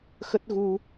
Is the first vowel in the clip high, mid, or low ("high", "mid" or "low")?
mid